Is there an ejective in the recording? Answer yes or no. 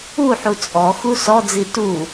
yes